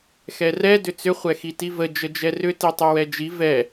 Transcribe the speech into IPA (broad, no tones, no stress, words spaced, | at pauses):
xɛrɛ dʏt͡sʏ χʷɛxitivə d͡ʒəd͡ʒɛrʏ titˤɛwɛd͡ʒi vɛ